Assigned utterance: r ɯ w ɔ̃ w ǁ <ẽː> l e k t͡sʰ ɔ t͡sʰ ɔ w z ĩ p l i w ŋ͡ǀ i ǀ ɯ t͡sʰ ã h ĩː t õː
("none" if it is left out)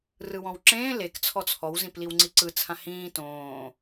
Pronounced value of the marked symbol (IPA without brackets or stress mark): ẽː